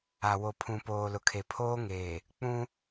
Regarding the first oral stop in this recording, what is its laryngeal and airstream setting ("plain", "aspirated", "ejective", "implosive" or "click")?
aspirated